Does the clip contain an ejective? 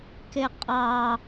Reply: yes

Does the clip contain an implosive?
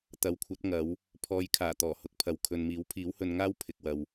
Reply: no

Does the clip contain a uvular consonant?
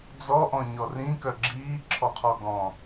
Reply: yes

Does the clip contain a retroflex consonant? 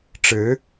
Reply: yes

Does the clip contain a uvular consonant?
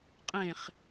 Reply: yes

